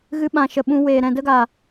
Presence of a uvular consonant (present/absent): absent